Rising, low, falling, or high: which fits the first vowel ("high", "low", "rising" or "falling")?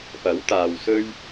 rising